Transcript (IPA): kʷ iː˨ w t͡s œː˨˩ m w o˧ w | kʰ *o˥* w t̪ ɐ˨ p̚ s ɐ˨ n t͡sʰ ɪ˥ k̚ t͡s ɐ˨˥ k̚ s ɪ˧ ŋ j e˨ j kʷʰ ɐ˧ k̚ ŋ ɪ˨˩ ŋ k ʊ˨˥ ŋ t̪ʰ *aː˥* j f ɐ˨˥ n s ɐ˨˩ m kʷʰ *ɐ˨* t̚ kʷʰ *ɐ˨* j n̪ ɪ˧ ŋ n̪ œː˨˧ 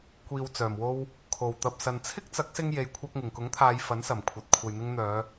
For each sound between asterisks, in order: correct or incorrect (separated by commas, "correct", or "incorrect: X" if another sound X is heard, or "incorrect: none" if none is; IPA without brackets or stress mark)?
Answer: incorrect: o˨˩, incorrect: aː˨˧, correct, correct